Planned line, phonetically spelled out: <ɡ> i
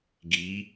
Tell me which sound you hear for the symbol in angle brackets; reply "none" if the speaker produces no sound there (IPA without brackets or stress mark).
ɡ